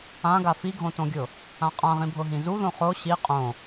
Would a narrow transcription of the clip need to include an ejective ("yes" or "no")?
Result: yes